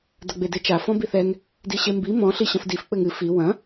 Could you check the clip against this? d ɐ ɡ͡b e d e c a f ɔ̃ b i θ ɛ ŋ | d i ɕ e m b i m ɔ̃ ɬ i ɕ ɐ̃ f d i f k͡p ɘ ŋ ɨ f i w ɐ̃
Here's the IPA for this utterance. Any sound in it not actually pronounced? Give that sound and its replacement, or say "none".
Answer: c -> t͡ʃ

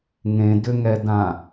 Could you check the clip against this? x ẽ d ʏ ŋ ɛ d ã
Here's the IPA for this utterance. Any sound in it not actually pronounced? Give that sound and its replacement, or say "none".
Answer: x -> ŋ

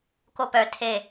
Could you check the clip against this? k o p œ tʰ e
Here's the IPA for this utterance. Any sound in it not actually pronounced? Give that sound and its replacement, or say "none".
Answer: none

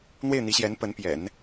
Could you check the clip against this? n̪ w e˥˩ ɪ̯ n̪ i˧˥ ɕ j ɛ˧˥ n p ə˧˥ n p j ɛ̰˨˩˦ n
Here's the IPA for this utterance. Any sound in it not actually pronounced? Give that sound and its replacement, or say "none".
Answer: none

